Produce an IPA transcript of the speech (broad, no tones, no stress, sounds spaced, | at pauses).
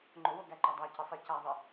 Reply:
ŋ͡ǃ ʊ w o ɡ æ ǃ a dˤ æ c ɘ sˤ i c a ðˤ ɘ